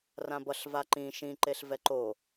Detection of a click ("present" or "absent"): present